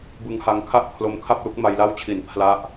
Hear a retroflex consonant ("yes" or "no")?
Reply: no